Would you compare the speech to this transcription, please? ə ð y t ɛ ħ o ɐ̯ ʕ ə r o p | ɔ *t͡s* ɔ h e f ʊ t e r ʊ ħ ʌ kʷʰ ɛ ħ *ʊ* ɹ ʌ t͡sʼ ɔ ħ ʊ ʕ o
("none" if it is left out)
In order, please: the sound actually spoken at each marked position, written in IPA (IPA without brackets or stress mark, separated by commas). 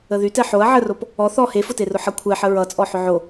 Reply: θ, ə